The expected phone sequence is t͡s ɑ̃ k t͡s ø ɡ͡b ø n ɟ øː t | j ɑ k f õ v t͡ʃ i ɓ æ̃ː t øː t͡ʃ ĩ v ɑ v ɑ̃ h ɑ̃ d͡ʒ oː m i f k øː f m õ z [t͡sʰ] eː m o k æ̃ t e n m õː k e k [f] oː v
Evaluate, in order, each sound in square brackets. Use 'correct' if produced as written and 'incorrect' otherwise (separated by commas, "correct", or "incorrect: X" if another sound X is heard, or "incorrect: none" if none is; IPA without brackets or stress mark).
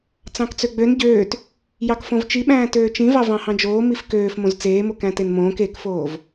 incorrect: t͡s, correct